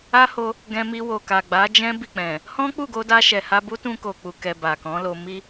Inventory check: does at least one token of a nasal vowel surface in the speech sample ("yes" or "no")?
yes